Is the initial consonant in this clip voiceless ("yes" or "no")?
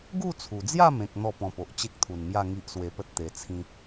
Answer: no